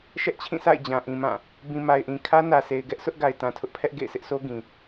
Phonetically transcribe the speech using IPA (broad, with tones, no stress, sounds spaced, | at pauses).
ʃ ɛ˦ ʔ t͡ɕʰ ĩ˦˨ sʰ a̰˦˨ ɪ̯ d͡ʑ ã˨ ʔ ĩ˨ m ã˦˨ | b ĩ˨ m a˨ ɪ̯ ʔ ĩ˨ kʰ ä˦ n ä˨ sʰ e˨ ɪ̯ ɡ ɛ˦ ʔ s ʊ˦ ʔ ɡ a˨ ɪ̯ t ã˨ tʰ ʊ˦ ʔ pʰ ɛ˦ ʔ ɡ ḛ˦˨ ɪ̯ sʰ ɪ˦ ʔ sʰ o˦ ɡ ĩ˨